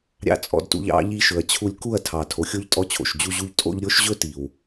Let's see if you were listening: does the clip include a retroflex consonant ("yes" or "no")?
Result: no